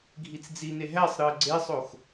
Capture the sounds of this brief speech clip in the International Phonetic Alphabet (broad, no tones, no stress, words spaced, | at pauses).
ɡʱit͡sd͡zine ɦæsˤɾɯə̯ ɡ͡ǀesˤox